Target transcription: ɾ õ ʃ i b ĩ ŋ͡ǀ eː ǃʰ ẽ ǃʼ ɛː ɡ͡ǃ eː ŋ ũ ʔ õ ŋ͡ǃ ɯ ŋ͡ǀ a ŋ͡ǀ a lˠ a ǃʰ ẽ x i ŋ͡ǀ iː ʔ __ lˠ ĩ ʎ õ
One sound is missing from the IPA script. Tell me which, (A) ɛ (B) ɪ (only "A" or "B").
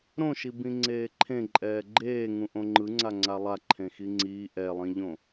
A